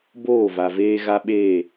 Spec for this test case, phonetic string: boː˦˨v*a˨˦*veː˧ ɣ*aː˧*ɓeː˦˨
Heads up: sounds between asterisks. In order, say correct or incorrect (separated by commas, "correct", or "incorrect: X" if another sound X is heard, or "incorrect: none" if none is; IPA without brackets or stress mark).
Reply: incorrect: a˨, incorrect: a˧